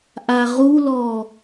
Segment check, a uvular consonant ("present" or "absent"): present